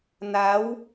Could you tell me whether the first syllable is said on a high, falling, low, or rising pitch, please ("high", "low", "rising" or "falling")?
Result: rising